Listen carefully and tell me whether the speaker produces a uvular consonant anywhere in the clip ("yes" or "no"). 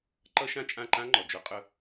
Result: yes